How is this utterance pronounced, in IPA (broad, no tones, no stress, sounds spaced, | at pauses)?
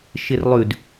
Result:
ʃ ɪ r lˠ ʉ d